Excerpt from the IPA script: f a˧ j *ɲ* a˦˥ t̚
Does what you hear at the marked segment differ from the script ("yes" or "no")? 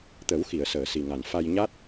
no